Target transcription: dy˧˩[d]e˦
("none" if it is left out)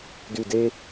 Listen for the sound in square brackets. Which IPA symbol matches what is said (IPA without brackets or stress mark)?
d